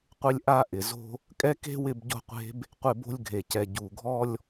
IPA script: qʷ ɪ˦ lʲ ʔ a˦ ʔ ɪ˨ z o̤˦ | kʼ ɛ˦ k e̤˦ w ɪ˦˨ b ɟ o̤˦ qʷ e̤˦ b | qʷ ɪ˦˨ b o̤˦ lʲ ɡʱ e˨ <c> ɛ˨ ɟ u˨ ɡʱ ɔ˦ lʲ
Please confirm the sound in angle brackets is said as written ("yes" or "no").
yes